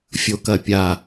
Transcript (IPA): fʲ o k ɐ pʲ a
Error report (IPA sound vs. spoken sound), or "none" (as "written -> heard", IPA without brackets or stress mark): none